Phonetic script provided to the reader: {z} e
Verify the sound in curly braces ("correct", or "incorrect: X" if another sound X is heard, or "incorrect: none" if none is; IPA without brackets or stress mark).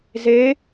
correct